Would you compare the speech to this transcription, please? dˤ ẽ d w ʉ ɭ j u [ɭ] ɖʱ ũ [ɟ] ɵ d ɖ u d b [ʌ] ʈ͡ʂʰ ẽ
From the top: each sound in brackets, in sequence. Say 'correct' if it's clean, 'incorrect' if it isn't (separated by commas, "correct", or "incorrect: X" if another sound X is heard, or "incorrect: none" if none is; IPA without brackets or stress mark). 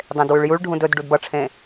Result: correct, incorrect: d, correct